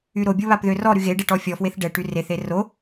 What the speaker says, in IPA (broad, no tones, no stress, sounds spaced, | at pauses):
y ɾ o bʲ o β a p ð ø r ɔ ɾ y ɣ e ɖ e ʈ ɔ fʲ ɔ f w e θ ɖ ɛ ʈ y r e θ e r o